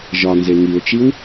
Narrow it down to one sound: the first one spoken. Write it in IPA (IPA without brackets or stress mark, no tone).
ʒ